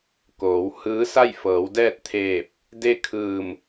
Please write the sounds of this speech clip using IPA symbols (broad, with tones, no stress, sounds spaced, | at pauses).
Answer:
k oː˩˧ w h ɯː˧˥ s a˥˨ j f ɤː˩˧ w d ɛː˥˨ t̚ t̪ʰ eː˧˩ p̚ | d e˥˨ kʰ ɯː˧˩ m